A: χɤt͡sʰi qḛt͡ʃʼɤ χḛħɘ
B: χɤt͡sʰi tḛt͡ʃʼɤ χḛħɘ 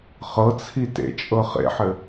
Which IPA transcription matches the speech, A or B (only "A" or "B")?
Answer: B